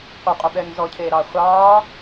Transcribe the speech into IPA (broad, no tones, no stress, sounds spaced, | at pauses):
qʷ e qʼ u ɓ ɛː ŋ z ɔ cʰ eː ɾ ɑː χʷ ɑː